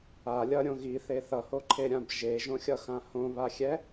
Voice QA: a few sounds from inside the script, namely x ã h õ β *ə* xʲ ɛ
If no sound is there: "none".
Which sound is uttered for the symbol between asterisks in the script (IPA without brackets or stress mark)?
a